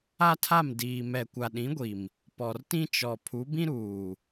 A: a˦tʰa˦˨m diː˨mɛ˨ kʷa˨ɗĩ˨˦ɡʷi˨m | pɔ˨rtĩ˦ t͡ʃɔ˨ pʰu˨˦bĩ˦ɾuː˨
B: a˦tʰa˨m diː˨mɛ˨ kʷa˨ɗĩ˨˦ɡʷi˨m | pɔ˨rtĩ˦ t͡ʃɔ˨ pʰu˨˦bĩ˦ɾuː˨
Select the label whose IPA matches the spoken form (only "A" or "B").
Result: A